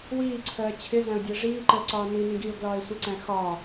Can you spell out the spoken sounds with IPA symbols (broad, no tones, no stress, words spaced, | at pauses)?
wiːǀʰɜː t͡ɕʰɪzæ̃ʊ̯dʲɜ ʐiːǃəːǀɒː ninĩ ɡiʊ̯ɡlɒːɪ̯ sʷəǀæ̃ xɒː